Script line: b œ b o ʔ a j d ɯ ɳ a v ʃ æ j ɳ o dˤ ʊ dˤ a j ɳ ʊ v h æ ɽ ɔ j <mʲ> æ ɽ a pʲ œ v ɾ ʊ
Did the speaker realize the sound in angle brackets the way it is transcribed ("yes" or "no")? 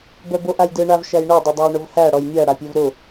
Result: yes